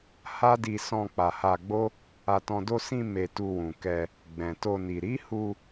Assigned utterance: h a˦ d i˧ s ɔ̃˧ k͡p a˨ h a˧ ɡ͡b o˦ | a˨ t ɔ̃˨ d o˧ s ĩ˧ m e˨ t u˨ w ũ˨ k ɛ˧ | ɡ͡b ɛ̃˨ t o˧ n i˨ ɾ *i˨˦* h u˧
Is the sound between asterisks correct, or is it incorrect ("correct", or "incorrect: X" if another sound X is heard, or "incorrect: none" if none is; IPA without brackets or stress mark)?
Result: correct